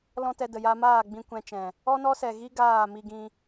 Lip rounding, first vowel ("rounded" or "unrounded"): rounded